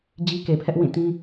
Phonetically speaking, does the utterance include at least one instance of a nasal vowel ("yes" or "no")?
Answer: yes